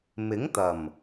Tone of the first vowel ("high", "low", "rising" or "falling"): rising